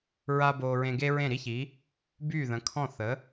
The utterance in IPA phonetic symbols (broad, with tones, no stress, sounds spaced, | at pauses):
ɹ a˥ b oː˧ ɹ ẽ˧ ɡ e˥ ɹ ẽ˥˩ ɾ i˥ ç i˩˥ | b yː˥˩ ð ə̃˩˥ kʰ ɔ̃˥˩ θ ə˩˥